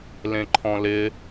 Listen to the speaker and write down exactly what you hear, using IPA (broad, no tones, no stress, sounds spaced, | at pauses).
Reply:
l ẽ ǃʰ ɔ̃ l ɪ